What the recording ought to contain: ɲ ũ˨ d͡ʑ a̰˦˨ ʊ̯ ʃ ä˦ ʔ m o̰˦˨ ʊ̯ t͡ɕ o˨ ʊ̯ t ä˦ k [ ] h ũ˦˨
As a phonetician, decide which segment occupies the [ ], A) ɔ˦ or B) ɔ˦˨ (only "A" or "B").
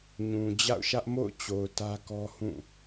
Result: A